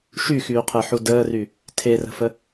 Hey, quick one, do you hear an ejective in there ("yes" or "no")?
no